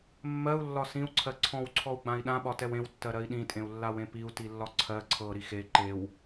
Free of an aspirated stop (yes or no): no